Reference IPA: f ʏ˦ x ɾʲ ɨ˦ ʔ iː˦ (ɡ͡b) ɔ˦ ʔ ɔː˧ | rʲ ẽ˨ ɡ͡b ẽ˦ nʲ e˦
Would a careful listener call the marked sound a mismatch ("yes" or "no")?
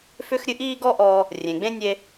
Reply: yes